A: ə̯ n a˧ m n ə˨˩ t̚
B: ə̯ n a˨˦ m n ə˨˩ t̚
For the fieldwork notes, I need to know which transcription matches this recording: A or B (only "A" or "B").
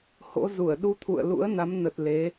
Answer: B